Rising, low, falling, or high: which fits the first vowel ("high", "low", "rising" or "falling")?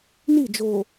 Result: falling